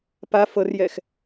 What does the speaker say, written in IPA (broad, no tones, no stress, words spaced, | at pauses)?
pa fɤrjɛx